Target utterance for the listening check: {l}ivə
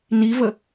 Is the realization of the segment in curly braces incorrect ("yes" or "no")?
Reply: yes